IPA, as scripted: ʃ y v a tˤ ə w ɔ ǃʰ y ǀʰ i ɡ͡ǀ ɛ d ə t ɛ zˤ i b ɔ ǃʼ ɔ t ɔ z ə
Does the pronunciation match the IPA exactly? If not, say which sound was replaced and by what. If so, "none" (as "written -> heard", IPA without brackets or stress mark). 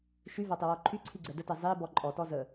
none